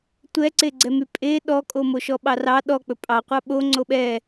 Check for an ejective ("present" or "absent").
present